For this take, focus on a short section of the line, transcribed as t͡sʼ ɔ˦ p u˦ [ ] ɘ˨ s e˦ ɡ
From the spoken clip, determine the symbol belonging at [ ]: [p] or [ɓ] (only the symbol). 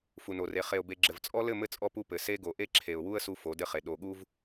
p